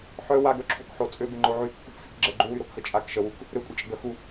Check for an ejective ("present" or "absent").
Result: present